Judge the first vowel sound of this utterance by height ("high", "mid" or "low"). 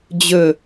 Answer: mid